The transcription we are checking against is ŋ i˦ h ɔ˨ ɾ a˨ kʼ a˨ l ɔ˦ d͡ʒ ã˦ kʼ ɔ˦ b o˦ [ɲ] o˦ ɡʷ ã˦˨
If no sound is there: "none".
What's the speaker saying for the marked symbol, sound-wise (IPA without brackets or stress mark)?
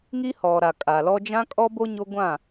ɲ